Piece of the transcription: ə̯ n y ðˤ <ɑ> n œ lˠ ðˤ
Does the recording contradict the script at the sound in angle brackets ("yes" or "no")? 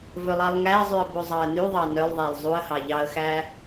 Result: no